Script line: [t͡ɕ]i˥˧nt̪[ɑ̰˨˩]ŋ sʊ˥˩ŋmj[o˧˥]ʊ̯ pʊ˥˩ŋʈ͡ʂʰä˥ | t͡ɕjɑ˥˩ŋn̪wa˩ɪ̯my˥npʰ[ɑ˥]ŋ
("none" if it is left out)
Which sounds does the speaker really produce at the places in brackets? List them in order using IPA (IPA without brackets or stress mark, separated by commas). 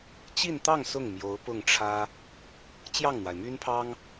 t͡ɕ, ɑ˥˧, o˧˥, ɑ˥